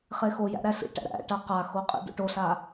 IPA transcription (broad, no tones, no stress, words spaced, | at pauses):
χexojæ̰ ɾæɬḭʈæ̰ ɾæ̰ ʈaqaxo qʼḭdo̰ʈoɬa